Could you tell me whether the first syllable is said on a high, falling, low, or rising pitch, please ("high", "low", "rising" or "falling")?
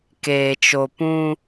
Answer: low